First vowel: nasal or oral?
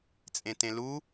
nasal